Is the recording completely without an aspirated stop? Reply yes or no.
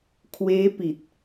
no